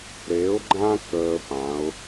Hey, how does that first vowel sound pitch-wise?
rising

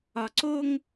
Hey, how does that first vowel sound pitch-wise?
low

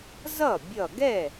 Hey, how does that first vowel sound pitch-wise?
falling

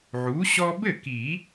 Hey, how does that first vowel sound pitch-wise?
rising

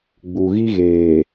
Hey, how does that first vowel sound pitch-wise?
low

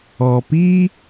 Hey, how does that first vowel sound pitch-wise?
low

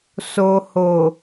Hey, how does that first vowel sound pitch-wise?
low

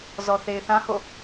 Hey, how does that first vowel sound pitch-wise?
low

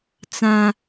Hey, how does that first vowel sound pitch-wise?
high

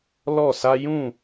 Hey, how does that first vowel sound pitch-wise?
falling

